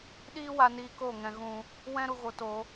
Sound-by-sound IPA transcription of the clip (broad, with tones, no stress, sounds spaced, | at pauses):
ɗ iː˦ w a˧ n iː˧ k o˦˨ ŋ ɛ̃˧ ɣ ũ˧ | w ɛ̃˦ ɾ u˧ ɣ o˧ t o˧